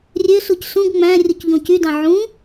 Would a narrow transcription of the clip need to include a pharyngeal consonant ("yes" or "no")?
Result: yes